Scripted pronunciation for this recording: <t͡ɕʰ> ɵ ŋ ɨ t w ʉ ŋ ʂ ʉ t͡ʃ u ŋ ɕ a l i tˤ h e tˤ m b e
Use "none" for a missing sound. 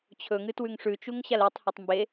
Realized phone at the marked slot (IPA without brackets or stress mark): t͡ɕʰ